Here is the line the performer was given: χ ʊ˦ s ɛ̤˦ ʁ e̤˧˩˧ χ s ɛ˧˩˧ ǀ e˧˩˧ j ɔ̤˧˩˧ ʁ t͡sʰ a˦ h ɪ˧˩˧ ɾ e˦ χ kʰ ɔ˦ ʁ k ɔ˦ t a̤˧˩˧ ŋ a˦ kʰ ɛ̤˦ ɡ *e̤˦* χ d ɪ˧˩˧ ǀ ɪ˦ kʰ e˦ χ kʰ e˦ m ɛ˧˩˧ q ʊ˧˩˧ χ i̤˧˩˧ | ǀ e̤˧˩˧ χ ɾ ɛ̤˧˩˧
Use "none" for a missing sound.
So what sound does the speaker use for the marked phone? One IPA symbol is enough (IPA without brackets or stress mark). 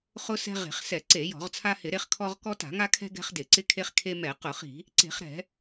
ɛ̤˦